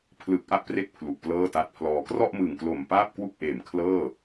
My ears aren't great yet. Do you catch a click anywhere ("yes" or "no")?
no